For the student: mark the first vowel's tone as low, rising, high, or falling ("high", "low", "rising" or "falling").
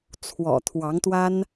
low